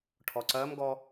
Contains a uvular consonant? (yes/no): no